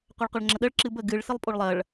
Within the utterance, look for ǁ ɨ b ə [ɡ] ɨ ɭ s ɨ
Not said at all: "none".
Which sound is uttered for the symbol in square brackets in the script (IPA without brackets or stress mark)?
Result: ɡ